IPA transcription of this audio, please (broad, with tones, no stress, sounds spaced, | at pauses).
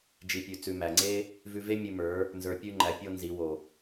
d͡ʒ i˨ pʲ ʉ˨ t͡s ʉ˨ m æ˨ ŋ͡ǀ e˦ | v ʉ˧ v e˦ mʲ ʉ˧ m ə˞˨˦ | n z ə˞˨ pʲ ʉ˧ ŋ͡ǃ æ˨ pʲ o˦ n z i˨˦ w o˨